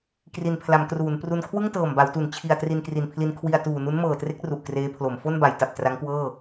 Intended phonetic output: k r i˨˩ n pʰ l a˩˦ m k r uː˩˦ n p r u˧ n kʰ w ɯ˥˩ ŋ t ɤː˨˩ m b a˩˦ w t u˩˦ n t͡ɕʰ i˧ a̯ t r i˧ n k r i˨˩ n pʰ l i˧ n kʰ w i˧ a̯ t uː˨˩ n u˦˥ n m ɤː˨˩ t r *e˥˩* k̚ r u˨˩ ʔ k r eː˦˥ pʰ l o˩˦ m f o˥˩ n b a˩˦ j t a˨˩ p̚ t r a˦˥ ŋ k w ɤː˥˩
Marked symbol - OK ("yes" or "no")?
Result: no